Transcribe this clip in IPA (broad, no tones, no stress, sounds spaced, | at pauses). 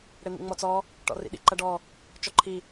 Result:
ɽ e n̪ ḭ ŋ͡m ɔ t͡s ɔ | ʈ ɔ̰ r ḭ ɗ ḭ ǃ ɐ ɖ ɔ | t͡ʃ ɔ ǃʰ i